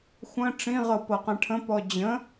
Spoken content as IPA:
xʷ ə̃ ʈ͡ʂ ĩ ʁ ɤ p ɤ q ɛ̃ ʈʰ ə̃ p ɔ d͡ʑ ə̃

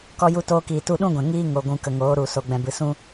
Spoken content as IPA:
k ɔ˧ j u˧ t oː˧ k iː˨ t u˧ ɗ ũ˦ ɡʷ ɛ̃˨ ŋ iː˦ ŋ o˨ ɡʷ ũ˨ k ə˨ ŋ oː˨˦ ɾ u˨ s o˨ ɡ͡b ɛ̃˨ b ɨ˨ s ũ˦

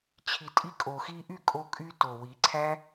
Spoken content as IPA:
t͡ɕʰ i˨ tʼ i˧ kʼ o˨ x i˧ ʔ y˦˨ kʼ o˦ kʼ y˦ t o˨ w i˨˦ ǀʰ æ˦

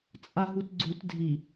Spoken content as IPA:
t͡sʼ a ɦ u t ɡ͡ǀ u t dʱ i

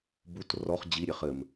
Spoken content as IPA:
b u t r ɔ χ d͡ʑ i ɾʲ e χ ɘ m

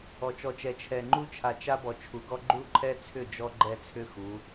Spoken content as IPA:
ɔ˨ t͡ʃ ɔ˨ t͡ʃ ɛ˨ t͡ʃʰ ɛ˨ ŋ͡ǃ u˦ t͡ʃʰ a˨ t͡ʃ a˦ b ɔ˨ t͡ʃʰ u˨ ɡ ɔ˦ ɡ͡ǃ u˦ ǃʰ ɛ˦ t͡sʰ ʏ˦˨ d͡ʒ ɔ˦ ɡ͡ǃ ɛ˦ t͡sʰ ʏ˦ x u˨˦

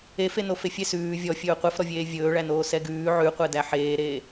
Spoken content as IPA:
e f e n o f e fʲ e s ʉː vʲ ɔ fʲ ɵː qʷ ɛ f ɾ ɔ vʲ eː vʲ ɵː ɭ æ n oː s ɛ ɡ ʉː ʕ ʉ qʷ ɛ d æ ħ eː ɾ eː

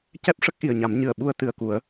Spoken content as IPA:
c ɛ˦˥ p̚ ʂ ə˦˥ k̚ ʔ i˨˩ ə̯ ɲ a˨˩˦ m ɲ ɨ˨˩ ə̯ ɓ u˧ ə̯ t̪ ɨ˨˩ ə̯ k u˨˩˦ ə̯

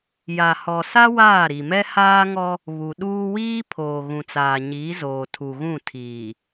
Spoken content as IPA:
j a˨ h ɔ˨ s a˦ w aː˦˨ ɾ i˨ m ɛ˦ h aː˦ ŋ ɔ˦ | β u˨ ɗ uː˦ w iː˦ pʰ oː˨ ɣ ũ˨ t͡s aː˨ ɲ iː˨˦ z oː˨ tʰ u˨ ɣ ũ˦˨ tʰ iː˨

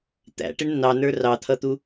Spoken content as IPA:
t̪ æ̰ ʈ ɪ ɳ nː ɑ n ə˞ r ɑ t̪ʰ ʌ t̪ u

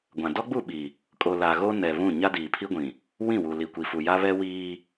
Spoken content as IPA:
ɡʷ ã˨ d ɔ˦ ɡ͡b u˦˨ ɓ i˨ | kʼ o˨ l a˨ ɣ o˦ n ɛ˨ β ũ˦˨ ɲ a˦ d iː˨ pʰ i˦ ɡʷ ĩ˨ | w ĩ˦˨ w u˨ l i˨ kʷ i˨ f u˨ j a˦ β ɛ˦ w iː˦

